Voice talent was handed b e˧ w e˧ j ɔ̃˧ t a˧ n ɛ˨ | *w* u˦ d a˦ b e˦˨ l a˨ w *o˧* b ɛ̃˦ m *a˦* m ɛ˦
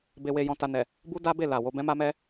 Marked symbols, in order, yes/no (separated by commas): no, yes, yes